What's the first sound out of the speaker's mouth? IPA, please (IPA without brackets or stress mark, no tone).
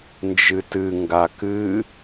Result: n